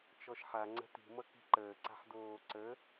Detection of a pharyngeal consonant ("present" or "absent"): present